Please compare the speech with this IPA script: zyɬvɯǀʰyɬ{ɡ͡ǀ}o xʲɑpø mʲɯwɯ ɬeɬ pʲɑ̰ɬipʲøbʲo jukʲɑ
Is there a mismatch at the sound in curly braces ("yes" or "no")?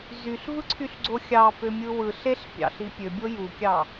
no